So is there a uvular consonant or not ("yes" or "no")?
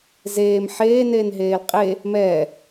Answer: yes